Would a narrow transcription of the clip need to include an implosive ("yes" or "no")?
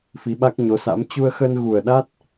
yes